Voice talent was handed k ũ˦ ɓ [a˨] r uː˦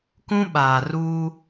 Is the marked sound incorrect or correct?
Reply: incorrect